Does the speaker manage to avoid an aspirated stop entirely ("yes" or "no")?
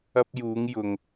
yes